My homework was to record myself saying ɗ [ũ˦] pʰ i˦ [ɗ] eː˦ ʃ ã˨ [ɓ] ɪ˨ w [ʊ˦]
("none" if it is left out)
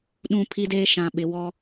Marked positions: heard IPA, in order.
ũ˦, d, ɓ, ɔ˦

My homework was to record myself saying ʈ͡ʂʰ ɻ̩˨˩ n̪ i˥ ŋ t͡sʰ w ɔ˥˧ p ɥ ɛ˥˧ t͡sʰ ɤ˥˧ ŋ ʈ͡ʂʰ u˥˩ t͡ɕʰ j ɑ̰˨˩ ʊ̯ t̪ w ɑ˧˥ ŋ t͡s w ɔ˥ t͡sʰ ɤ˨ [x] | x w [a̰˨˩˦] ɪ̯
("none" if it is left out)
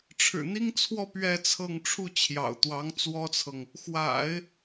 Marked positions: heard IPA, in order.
ŋ, a̰˨˩˦

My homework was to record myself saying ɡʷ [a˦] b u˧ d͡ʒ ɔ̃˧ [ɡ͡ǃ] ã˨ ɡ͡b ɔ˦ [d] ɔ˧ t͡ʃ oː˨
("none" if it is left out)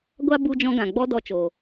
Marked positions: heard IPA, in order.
a˦, ɡ, d

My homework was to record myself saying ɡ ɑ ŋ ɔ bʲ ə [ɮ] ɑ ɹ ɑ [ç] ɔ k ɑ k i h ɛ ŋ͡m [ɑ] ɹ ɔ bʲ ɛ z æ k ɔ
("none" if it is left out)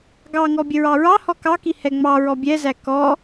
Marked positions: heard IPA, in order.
ɹ, h, ɑ

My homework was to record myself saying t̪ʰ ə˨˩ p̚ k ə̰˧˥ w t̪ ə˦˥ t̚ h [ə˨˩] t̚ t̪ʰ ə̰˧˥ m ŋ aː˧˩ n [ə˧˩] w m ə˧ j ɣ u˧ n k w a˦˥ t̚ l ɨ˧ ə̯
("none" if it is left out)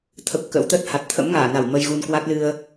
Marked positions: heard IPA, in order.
a˨˩, a˧˩

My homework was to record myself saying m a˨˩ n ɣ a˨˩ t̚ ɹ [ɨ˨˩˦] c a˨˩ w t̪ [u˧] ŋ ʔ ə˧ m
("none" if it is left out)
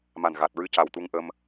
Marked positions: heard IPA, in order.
ɨ˧, u˧

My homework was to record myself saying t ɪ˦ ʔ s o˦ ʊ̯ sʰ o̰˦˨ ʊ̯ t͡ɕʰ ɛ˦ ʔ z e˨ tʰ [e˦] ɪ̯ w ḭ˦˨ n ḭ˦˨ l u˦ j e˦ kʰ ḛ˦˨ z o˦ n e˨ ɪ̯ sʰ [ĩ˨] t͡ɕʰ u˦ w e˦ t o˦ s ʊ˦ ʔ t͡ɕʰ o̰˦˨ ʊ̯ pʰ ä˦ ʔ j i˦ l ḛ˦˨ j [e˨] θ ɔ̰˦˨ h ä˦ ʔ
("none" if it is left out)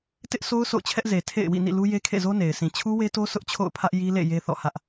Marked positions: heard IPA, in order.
ḛ˦˨, ĩ˨, e˦

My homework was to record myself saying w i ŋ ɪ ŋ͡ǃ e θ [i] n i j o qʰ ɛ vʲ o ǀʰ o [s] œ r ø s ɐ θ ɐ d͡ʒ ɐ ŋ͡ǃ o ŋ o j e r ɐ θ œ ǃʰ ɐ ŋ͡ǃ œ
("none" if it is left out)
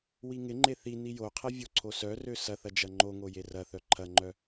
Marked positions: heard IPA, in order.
i, s

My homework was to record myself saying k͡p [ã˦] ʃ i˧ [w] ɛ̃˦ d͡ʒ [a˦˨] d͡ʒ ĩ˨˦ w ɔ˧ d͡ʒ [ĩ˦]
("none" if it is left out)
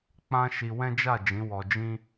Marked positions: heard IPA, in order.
ã˦, w, a˦˨, ĩ˦

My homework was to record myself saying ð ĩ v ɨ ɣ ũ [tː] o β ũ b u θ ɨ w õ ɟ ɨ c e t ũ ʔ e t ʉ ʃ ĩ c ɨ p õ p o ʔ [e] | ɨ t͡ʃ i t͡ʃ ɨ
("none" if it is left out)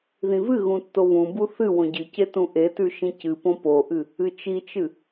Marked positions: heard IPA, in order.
tː, ɨ

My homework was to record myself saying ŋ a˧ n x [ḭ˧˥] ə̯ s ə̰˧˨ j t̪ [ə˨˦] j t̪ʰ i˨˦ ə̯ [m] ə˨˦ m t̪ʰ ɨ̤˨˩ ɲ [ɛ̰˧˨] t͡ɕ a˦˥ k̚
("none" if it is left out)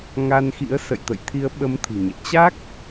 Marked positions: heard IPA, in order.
ḭ˧˥, ə̰˧˨, ɓ, ɛ̰˧˨

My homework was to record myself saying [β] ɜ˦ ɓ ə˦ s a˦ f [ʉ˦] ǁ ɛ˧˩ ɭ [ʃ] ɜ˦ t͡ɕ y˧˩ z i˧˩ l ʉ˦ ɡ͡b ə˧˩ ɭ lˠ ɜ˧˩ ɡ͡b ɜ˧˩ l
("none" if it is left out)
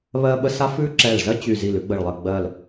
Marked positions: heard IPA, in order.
β, ʉ˦, z

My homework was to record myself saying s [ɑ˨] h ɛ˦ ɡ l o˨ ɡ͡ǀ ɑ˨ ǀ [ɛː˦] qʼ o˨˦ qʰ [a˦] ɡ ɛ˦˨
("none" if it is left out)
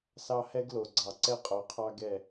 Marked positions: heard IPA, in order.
ɑ˦, ɛ˦, ɑ˦

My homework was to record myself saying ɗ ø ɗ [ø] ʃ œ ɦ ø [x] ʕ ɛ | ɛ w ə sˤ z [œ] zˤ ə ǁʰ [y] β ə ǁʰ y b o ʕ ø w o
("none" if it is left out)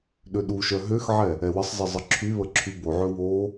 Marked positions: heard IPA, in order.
u, x, ə, y

